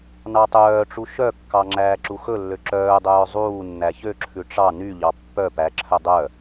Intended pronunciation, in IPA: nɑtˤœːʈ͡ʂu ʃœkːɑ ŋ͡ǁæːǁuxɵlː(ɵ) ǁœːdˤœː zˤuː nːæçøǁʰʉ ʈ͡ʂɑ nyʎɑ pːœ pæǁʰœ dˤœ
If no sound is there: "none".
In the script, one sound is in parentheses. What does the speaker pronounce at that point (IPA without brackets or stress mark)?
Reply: ø